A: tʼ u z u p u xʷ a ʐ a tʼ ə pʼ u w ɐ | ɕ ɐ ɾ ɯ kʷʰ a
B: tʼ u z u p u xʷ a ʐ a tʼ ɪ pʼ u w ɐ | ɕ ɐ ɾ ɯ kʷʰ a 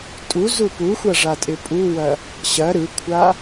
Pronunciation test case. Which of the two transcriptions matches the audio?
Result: B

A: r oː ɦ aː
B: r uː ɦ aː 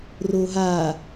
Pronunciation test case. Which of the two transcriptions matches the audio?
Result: A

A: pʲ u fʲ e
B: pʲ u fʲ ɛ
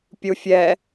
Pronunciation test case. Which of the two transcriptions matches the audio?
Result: B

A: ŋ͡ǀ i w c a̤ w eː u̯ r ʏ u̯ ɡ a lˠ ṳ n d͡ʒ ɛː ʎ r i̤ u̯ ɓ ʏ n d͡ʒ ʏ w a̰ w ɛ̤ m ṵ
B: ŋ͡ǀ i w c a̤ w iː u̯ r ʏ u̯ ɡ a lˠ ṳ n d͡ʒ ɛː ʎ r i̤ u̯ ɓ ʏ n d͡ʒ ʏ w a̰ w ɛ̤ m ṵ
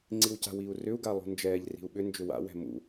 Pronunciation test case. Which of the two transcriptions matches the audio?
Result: B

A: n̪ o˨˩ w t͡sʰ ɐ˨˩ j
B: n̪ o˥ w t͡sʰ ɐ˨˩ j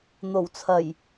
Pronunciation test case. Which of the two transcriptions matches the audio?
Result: A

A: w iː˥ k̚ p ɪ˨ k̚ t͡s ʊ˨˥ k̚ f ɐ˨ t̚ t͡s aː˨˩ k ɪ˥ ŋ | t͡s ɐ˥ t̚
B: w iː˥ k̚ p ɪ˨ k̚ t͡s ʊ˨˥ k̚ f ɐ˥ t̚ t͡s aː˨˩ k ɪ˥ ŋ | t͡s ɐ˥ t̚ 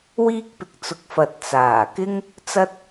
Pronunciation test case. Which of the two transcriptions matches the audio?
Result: A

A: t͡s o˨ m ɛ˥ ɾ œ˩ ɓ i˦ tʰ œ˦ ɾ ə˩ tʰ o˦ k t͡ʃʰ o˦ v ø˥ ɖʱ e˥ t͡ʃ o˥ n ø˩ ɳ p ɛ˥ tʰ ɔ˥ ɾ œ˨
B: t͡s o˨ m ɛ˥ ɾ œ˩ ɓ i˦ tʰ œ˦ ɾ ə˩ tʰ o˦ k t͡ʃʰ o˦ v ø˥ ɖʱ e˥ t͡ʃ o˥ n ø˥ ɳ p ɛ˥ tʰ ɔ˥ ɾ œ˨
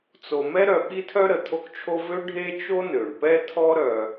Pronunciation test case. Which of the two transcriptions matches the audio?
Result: A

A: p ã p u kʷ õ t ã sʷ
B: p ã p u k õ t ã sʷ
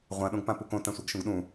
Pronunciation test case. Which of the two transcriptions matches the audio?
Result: B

